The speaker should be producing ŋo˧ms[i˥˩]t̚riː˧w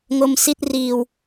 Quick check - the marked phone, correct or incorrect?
correct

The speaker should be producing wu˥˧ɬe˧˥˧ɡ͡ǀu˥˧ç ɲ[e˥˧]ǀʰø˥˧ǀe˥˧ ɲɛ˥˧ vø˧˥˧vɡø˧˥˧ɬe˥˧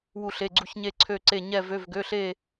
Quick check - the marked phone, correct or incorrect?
correct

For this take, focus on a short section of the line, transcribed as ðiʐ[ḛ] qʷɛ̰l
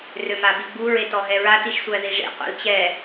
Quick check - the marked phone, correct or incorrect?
correct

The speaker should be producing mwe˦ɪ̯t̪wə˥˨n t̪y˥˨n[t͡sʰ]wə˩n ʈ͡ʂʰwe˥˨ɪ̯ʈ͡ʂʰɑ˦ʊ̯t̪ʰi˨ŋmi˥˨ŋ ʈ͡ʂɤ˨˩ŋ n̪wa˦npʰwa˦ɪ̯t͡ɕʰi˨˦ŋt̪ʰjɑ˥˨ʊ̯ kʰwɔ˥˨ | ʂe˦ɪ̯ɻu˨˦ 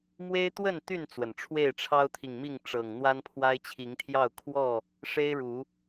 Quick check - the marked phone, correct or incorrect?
incorrect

